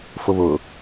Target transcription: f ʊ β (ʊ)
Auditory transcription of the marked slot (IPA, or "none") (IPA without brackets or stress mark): ʊː